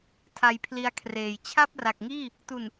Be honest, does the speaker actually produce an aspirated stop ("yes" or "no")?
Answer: yes